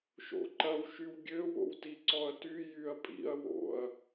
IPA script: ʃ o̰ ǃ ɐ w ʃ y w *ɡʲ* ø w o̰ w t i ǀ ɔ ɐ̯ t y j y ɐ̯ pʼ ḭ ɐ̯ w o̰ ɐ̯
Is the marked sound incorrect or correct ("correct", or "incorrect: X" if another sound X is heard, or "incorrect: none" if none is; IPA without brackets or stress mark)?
correct